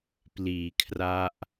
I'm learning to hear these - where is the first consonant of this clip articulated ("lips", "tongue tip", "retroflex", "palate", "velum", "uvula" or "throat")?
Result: lips